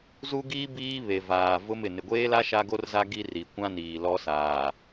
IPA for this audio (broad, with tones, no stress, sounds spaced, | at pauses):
z u˦ ɡ iː˦ b iː˦ β e˨ v aː˨ v ʊ˦ m ɪ˨ n ɪ˨ ɡʷ eː˦ l a˦ ʃ a˦ ɡ o˦ r z a˦ ɡ i˦ r i˨ kʷ ã˦ n iː˨ l ɔ˦ s aː˨